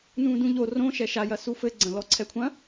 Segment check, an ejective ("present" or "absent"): absent